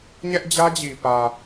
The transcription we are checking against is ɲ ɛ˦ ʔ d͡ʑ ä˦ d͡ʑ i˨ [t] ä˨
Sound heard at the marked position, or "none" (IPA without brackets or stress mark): p